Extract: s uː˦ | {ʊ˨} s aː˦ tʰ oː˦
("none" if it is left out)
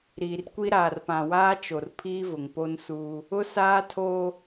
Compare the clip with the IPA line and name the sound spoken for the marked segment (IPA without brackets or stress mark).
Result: ʊ˦